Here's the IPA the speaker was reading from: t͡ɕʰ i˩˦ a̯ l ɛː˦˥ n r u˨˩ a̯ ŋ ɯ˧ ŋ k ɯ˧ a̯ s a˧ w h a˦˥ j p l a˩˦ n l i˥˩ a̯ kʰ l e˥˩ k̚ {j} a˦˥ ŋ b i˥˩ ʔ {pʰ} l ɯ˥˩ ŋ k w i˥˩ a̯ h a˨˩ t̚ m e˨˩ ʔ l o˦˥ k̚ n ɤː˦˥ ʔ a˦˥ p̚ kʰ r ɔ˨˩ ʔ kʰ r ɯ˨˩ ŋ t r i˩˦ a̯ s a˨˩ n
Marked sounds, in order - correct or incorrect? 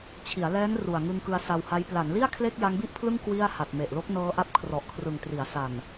correct, correct

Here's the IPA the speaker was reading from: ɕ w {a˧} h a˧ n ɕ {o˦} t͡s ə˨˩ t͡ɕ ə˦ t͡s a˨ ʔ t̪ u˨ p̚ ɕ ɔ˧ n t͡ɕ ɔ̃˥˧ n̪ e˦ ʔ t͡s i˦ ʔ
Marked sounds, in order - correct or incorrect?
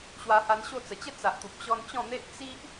correct, incorrect: o˥˧

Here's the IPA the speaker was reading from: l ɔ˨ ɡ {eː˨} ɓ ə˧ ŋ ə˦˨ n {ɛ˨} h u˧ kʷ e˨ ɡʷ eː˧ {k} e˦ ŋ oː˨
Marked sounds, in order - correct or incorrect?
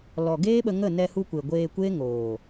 incorrect: eː˦, incorrect: ɛ˧, incorrect: kʷ

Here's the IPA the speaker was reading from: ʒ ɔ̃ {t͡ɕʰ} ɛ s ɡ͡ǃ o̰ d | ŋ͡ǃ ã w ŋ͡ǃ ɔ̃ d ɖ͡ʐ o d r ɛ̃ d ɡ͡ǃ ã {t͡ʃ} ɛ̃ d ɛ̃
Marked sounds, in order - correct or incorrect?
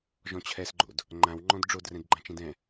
correct, correct

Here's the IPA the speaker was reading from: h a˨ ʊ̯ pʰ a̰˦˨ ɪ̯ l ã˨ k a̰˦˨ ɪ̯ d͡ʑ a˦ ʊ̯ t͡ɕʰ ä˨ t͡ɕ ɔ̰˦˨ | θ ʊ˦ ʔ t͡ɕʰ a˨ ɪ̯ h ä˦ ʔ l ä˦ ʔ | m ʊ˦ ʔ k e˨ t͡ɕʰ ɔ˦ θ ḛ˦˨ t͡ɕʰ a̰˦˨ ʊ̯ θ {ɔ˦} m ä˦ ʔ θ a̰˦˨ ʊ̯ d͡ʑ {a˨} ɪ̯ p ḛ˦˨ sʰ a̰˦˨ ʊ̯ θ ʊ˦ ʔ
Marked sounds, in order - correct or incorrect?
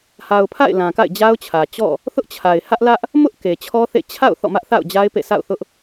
incorrect: ɔ̰˦˨, incorrect: a˦

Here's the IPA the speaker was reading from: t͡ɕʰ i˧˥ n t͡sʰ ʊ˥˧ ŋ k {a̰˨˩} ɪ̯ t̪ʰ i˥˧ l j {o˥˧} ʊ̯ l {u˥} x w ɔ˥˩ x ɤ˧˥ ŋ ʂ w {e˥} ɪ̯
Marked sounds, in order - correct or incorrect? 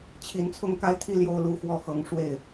incorrect: a˥˧, correct, incorrect: u˥˧, incorrect: e˥˩

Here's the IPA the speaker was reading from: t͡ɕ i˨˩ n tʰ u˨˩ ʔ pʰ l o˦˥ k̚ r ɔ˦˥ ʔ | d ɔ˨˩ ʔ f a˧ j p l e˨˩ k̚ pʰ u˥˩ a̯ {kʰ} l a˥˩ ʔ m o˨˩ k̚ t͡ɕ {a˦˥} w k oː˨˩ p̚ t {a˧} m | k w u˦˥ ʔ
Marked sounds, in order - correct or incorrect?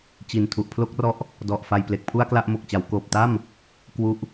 incorrect: k, incorrect: a˩˦, incorrect: a˥˩

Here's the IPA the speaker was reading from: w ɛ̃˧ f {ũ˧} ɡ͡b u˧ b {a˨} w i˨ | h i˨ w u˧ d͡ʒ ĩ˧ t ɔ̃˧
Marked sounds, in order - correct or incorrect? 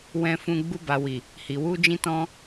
correct, correct

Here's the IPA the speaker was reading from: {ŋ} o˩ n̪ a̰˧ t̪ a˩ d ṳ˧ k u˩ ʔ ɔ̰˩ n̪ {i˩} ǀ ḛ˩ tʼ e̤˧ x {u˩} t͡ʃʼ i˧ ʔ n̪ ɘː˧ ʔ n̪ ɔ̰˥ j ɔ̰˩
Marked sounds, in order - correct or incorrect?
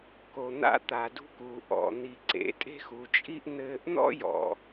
incorrect: k, correct, correct

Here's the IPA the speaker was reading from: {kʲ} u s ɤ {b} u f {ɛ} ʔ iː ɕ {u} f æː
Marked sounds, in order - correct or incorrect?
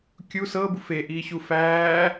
correct, correct, incorrect: e, correct

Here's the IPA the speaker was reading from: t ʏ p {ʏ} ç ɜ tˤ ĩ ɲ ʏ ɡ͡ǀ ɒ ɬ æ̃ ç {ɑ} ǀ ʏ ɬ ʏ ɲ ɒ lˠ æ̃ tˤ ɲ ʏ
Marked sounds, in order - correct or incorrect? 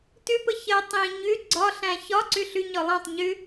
incorrect: ə, incorrect: ɒ

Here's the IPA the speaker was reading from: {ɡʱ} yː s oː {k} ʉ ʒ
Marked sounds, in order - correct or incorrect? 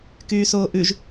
incorrect: k, incorrect: ʔ

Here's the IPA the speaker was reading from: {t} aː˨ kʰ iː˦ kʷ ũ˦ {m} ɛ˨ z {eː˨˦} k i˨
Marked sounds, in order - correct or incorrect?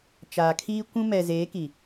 incorrect: t͡ʃ, correct, correct

